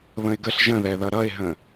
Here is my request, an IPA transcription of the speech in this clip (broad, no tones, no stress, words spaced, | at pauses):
βə̃ɪ̯ɡəɬ ʒə̃ðɛðʌ ɾʌɪ̯ɦə̃